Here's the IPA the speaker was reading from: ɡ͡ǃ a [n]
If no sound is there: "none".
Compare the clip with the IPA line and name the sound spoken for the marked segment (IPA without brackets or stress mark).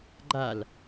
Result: l